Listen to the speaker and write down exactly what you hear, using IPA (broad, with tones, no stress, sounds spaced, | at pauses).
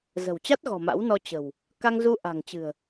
z ə̤˨˩ w t͡ɕ a˦˥ t̚ ɣ ɔ̤˨˩ m a̰˧˥ w n ɔ˧ t͡ɕ ə̤˨˩ w | k a˧ ŋ z u˧ ʔ a̤˨˩ ŋ t͡ɕ ɨ̤˨˩ ə̯